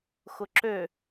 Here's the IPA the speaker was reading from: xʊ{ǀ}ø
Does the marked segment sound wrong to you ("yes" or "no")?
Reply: yes